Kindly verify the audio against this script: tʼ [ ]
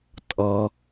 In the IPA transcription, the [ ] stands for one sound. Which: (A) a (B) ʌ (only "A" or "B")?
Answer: B